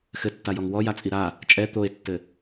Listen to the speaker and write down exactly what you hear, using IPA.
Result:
xɘtːajɔŋ wɔjat͡sʼi ɾa | t͡ʃʼɛ t̪oe̯tːɘ

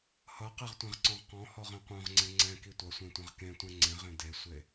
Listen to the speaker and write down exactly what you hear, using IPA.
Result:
hʌqeʁtʷẽʁǀɔ̃ʁ qɔ̃hɔʁẽ qʷœ̃ʁŋ͡ǀẽ ŋ͡ǀɛ̃ki tʷʌsʷẽtʷɛ̃ʁ kẽtʷɛ̃ ŋ͡ǀẽʁẽ desʷe

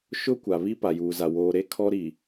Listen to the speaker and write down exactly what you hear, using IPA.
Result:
ʃʊ˦ kʷa˨βi˦ pa˨juː˨za˨ woː˨ɾe˦ kʰɔ˦ɾi˨

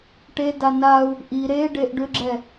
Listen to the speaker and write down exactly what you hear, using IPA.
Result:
ʈe danau̯ | ʔi ɾeɖeʔ ɖʏɡ͡ǁɛ

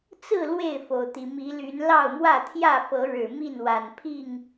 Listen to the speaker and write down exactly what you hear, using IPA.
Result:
t͡sɹ̩˥˨ lwe˥˨ɪ̯fo˩ʊ̯t̪i˩ mi˨˦ly˨˦n lɑ˥˨ʊ̯mwä˥˨ t̪ʰjä˥˨fɤ˨˦ ɻɻ̩˨˩mi˥˨nwa˨˩n pʰi˥˨ŋ

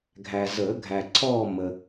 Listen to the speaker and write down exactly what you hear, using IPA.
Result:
ɡʱæ˨zəː˨˩˦ ɡʱæ˨ǀʰɔː˦˨ mə˨

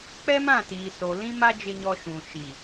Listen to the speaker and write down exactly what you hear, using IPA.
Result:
k͡pɛ˦mã˦˨tiː˨so˨ lĩ˦ma˦ d͡ʒɪ˦ɲɔ˦ ʃũ˨ʃi˨

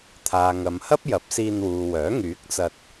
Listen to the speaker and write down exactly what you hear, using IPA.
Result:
t̪ʰaː˨ŋɐ˨mhɐ˥p̚ jɐ˨˥p̚siː˧nwuː˨wœː˨˥ ŋyː˨˥k̚t͡sɐ˧t̚

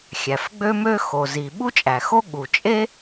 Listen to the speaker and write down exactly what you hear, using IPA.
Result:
xʲæ˩fɡ͡bø˥mø˥ xo˩zi˩ ɓu˥t͡ʃʼæ˩xo˥ ɠu˩t͡ʃʼe˥

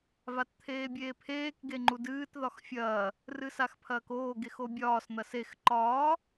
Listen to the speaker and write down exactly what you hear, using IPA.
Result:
vatt̪ʰeːbʲeːpʰeːk ɡeŋ͡ǃudɨːt ðɒxfʲɐː | rɨsaxpʰɐːkoː ɡexobʲɒːs n̪ɐsex ǃɒː

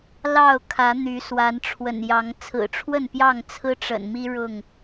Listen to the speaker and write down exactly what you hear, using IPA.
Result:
lɑ˥˨ʊ̯kʰä˨˦ n̪y˨˦ swa˨˦nʈ͡ʂʰwə̰˨˩njɑ˨˦ŋ t͡sʰɹ̩˨˩ʈ͡ʂʰwə˥˨npjɑ˥˨ŋ t͡sʰɹ̩˦ʈ͡ʂə̰˨˩nmi˦ ɻʊ˥˨ŋ

